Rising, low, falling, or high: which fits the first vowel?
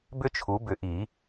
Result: high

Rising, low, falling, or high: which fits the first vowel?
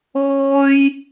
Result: high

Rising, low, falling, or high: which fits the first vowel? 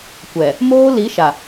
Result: low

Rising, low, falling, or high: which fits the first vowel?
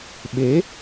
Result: rising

